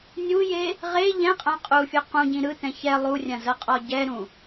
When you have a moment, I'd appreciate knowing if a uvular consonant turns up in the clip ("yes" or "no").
yes